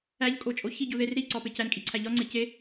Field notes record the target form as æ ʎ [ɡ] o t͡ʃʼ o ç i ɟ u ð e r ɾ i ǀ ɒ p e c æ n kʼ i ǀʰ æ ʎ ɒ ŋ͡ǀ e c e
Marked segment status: incorrect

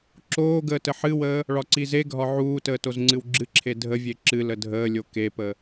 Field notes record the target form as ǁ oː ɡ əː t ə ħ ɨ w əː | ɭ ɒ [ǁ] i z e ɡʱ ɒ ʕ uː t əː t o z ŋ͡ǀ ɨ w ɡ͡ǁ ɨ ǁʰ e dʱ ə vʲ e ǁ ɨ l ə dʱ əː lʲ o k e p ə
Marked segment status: incorrect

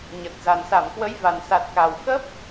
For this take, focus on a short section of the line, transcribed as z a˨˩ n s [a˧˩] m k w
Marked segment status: correct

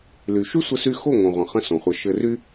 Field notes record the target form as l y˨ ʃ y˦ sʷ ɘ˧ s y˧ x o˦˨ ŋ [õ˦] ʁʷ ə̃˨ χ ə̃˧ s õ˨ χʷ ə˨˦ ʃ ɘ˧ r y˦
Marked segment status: incorrect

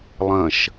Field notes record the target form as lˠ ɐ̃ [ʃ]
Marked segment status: correct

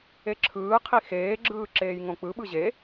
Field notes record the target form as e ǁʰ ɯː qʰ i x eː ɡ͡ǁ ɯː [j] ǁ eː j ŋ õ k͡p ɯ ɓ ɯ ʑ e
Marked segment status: incorrect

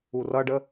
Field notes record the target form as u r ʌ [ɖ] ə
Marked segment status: correct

